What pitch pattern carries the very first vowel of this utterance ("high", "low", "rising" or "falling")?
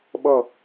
falling